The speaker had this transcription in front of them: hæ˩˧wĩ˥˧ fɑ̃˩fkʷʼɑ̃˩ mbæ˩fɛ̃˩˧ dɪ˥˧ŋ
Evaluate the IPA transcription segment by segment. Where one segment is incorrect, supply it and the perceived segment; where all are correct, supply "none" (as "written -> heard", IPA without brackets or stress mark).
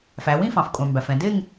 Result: h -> f